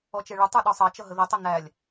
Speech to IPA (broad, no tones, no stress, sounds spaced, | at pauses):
ɔ t͡ʃ ɛ ɭ ə tˤ ə˞ ɗ ɔ sˤ ɑ t͡ʃ ʌ ɦ ə ð ə tˤ ʌ n æ lʲ